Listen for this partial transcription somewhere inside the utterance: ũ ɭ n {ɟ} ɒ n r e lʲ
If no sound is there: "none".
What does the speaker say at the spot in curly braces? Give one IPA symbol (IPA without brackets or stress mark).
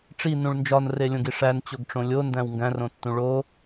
d͡ʒ